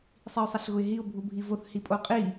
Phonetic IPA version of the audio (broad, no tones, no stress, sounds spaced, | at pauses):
sˤ i ʊ̯ sˤ ɛ ɬ ɣ ʊ ɪ̯ ɦ i ʊ̯ bʱ u bʱ i v o θ h i pʼ o qʼ i